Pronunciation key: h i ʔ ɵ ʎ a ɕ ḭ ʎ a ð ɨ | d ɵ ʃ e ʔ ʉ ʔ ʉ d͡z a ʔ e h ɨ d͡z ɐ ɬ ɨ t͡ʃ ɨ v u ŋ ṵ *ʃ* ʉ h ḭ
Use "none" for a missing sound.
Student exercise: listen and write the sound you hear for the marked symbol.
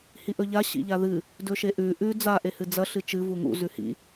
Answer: z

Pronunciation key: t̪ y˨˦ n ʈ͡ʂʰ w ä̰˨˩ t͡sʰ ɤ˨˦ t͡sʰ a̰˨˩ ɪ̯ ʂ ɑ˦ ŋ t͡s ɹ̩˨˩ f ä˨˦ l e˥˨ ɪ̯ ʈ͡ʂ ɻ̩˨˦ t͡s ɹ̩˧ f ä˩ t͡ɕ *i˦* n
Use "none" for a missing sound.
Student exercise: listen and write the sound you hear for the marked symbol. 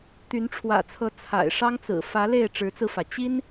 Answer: i˦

